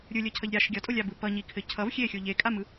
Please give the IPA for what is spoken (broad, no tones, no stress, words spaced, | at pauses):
ɾʲɯlʲʌcʰʌʎ ɾʲaʃ ɡʲʌtʼolʲabɯ pʌɲikʰɘ cʰʌv xʲexʲo ʎekʼamɯ